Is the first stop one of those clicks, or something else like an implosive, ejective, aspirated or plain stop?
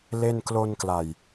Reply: plain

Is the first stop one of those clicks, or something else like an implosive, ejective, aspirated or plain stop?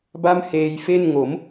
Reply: plain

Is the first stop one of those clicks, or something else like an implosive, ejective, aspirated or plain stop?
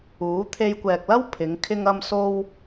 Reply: aspirated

